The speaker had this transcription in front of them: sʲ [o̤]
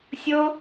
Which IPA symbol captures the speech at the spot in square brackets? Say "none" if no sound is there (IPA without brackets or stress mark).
o